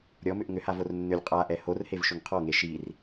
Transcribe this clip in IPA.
ɾʲ ɔ m ʏ ʔ ŋ ʏ h a v o r nː ʏ lʲ qʼ a ʔ ɛ h o r h e v ʃ ʏ ŋ qʰ ɔ ŋ e ʃ i r

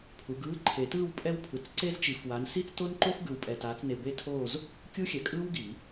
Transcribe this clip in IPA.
pʰ u˨˦ ɡ ɯː˧˥˧ ǃʰ e˨˩˦ t ɯː˥˧ w pʼ ɛ˥ w pʰ ɯ˨˩˦ t͡s ǀ e˥ z t͡ʃ i˨˩˦ f w a˨˦ n s i˥˧ t͡s t o˥ n ǃ o˥ f ɡ ɯ˨ w pʼ ɛ˨ t aː˨˦ t͡s n e˨ b e˥ tʰ o˥˧ z | kʲ u˥ xʲ ɛ˨˩˦ kʼ ɯː˥ w ɡ i˨˩˦

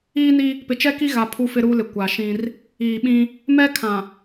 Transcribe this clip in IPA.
iː˦ n i˦ | p ɪ˨ t͡ʃ ɛ˦ k i˦ ɣ a˨ pʰ u˦ f ɪ˦ ɾ uː˦ l ɪ˨ kʷ a˨ ʃ ĩ˦ r | iː˨ ɓ ĩ˦ | m ɛ˦ kʰ ã˨

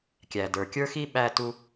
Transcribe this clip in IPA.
kʲ æ˩ d ə˞˩ kʲ ə˞˥ x i˥ ɓ æ˥ t u˥

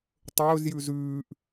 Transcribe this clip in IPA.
tˤ ɵː z j ʉ z ʉː ʔ

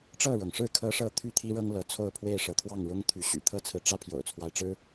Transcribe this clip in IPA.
ʈ͡ʂ ɤ˥˨ ɻ ɤ˩ ŋ ʂ ɻ̩˥˨ kʰ ɤ˦ ʂ ɤ˥˨ t̪ʰ y˥˨ t̪ʰ i˦ ɻ ɤ˦ ŋ l ɤ˨˦ t͡sʰ o˥˨ ʊ̯ pʰ w e˥˨ ɪ̯ ʂ ɤ˨˦ t̪ʰ w ɑ˥˨ ŋ ɻ ʊ˦ ŋ t̪ʰ y˨˦ ɕ y̰˨˩ t̪ʰ ɤ˦ t͡sʰ ɹ̩˨ ʈ͡ʂ ä˦ pʰ j o̰˨˩ ʊ̯ t͡sʰ w a˦ ɪ̯ ʈ͡ʂ ɻ̩˦

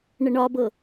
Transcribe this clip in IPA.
ɳ ə ɳ ɒ b ɤ

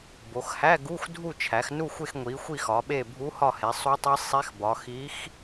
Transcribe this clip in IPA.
b o˩˧ x h æ˧˥˧ ɡ u˧˥˧ x dʱ u˦˨ t͡ʃʰ æ˩˧ x n u˦˨ xʷ e˦˨ x ŋʷ i˩˧ xʷ i˦˨ x ɒ˩˧ ɓ e˦˨ bʱ u˧˥ h ɒ˦˨ h e˩˧ sˤ u˧˥ tˤ i˧˥ sˤ e˧˥ x b ɒ˩˧ x i˧˥ x

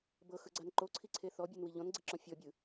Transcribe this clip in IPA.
b ɤ x ɯ ɡ͡ǀ a n ǃ o ǀʰ i ǀʰ e θ ɔ bʲ u n w i ʎ ɔ̃ n ɡ͡ǀ i ǁ ɔ̃ fʲ ɔ bʲ ɯ

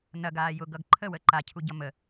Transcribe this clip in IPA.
n ɐ ɡ aː j ʊ ɡ ʌ ɡ ǃʰ ə w ə ǃ a cʰ u ɟ ʌ m ə

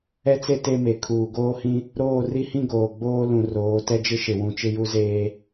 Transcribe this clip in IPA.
ɛ˦ t͡s e˦ t e˦ m e˨ kʰ uː˨ ɡ oː˦ h ĩ˦ | ɾ oː˦˨ r i˦ h ĩ˦ ɡ oː˨ ɡ͡b oː˦ l ũ˨ r oː˨˦ t ɛ˦ d͡ʒ ɪ˦ ʃ ɪ˨ w ũ˨ t͡ʃ ɪ˦ j u˦ z eː˦

